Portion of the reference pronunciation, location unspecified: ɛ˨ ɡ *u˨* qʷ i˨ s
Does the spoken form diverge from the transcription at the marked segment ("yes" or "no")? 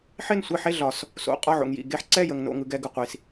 yes